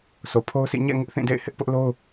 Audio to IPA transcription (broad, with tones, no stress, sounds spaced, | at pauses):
sʰ o˨ pʰ o˦ ʊ̯ sʰ ḭ˦˨ ɲ ɛ̰˦˨ ŋ ɪ˦ ʔ θ ĩ˦˨ d ḛ˦˨ ɪ̯ h ɪ˦ ʔ p ʊ˦ ʔ l o˦ ʊ̯